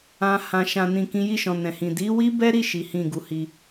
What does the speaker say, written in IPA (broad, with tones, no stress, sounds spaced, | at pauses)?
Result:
ã˨ h ã˨ ʃ ã˨ n ĩ˨ k ĩ˨˦ j i˦˨ ʃ ɔ̃˨ n ɛ̃˨ h ĩ˨ d i˨˦ w i˦ b ɛ˦ ɾ i˦˨ ʃ i˨˦ h ĩ˦˨ ɡ u˨˦ h i˧